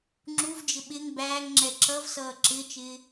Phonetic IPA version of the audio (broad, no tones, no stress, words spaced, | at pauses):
ŋ͡ǁuvd͡ʒɪ ɓɪŋ bæːŋŋ͡ǁɛ ǁʌvsʌː ǁɪːt͡ʃɪː